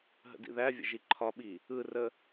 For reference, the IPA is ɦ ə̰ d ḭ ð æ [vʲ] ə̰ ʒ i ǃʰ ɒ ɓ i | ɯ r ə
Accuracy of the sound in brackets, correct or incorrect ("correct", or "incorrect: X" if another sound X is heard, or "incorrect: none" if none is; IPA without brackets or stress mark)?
correct